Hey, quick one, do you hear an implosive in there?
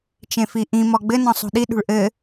yes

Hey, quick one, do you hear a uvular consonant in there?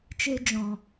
no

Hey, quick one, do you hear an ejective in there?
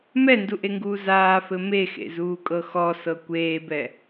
yes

